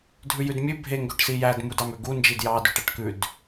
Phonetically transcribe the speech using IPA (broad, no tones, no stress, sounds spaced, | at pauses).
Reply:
dʱ ʉ j ʉ d mʲ ʉ bʱ e ŋ ɡ ø ʈ s i j æ d m u d ɑ m ø ɡ u n d͡ʒ i d j ɑ d ʉ ʈ æ ʈ k ʉ d